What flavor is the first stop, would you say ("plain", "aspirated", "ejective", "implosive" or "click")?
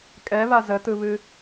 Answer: ejective